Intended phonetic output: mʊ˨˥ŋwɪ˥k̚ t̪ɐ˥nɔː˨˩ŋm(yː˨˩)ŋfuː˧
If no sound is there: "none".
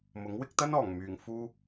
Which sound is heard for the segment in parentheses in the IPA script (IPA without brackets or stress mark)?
yː˨˩